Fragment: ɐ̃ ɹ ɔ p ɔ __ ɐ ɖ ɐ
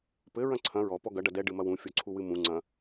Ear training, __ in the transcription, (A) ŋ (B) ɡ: B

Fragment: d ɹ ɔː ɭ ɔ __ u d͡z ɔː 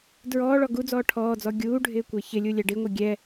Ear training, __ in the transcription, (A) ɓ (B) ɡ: B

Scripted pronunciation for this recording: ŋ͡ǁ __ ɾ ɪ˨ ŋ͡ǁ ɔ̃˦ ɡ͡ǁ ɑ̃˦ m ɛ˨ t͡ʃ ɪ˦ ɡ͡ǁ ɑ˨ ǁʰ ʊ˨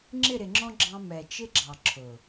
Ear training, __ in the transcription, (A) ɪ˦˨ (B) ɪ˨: A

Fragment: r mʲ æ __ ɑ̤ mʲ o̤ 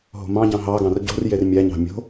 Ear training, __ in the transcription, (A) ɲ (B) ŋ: A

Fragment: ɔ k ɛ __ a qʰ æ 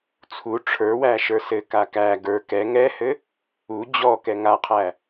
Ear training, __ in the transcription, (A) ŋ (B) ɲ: A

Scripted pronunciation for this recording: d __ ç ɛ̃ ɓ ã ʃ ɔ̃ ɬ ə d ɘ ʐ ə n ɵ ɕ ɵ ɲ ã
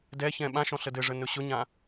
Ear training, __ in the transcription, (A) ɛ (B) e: A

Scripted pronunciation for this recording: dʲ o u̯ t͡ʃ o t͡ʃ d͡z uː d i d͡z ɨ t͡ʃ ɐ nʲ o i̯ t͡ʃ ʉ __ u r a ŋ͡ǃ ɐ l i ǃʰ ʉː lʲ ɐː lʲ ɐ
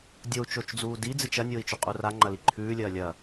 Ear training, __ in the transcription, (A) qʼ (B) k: A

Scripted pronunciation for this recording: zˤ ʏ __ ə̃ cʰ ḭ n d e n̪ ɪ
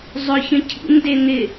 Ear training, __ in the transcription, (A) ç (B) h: A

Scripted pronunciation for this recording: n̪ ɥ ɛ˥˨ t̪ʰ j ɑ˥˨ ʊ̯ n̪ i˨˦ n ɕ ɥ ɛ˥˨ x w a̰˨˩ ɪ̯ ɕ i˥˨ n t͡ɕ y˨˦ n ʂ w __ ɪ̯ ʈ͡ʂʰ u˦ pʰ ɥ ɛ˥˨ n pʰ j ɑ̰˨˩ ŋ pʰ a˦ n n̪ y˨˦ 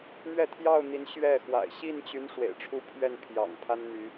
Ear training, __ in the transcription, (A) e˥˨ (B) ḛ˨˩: B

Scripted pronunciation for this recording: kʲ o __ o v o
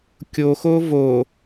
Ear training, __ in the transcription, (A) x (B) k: A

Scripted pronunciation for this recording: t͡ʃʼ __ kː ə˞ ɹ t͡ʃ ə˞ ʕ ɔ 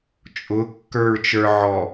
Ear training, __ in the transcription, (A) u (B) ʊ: B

